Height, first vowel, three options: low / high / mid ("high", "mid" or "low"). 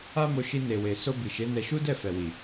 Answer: low